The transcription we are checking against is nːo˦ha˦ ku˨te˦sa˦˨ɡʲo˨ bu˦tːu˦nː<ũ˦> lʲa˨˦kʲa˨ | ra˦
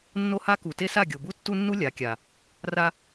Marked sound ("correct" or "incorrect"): incorrect